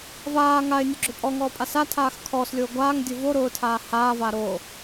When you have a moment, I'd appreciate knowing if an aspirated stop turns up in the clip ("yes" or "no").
yes